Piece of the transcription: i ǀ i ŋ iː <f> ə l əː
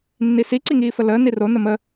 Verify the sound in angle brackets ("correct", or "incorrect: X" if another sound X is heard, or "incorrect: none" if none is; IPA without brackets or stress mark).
correct